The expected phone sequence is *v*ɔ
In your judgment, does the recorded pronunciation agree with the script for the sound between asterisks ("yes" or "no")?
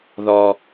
no